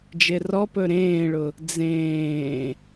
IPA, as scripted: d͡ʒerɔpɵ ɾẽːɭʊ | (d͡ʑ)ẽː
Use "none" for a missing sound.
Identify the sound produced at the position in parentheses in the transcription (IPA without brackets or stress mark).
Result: d͡z